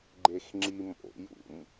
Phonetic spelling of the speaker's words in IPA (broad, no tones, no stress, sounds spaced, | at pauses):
ɡ͡ǃ e x ŋ͡ǁ i m o̰ j ṵ m